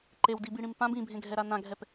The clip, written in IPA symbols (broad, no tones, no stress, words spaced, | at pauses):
ǃewdibiɽĩm pãb ĩbʱẽɡʱɛɾa nãɡʱɛp